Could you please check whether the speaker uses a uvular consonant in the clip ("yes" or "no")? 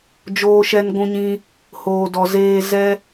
no